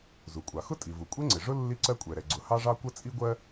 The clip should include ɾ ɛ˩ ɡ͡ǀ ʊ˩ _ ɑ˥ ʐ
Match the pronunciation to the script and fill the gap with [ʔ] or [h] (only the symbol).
h